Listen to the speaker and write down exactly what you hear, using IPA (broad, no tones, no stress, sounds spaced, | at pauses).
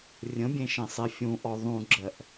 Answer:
rʲ ə̃ bʲ ẽ ʃ ẽ sˤ e fʲ ũ ʔ ɔ ðˤ ũ ɡ͡ǁ ɜ ʔ